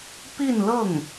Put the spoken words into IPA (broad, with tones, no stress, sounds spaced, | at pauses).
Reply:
p i˥˧ n l ɤ˥˩ ŋ